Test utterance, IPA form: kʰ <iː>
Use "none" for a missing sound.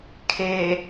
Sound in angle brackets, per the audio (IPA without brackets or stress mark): eː